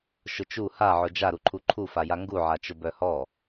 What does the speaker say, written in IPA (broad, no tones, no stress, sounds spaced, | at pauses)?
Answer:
ʃ ʊ t͡ʃ u h a ʕ ʊ d͡ʒ a ɾ u ǃʰ u ǃʰ u f a j a ŋ ɡ u ʕ a t͡ʃ ʊ b œ h ɔ